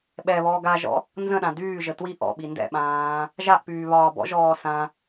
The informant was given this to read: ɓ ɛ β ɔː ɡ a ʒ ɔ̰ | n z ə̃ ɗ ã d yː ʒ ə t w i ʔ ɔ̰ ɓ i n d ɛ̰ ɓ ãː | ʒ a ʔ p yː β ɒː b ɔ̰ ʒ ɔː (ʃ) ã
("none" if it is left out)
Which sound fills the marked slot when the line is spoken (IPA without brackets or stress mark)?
s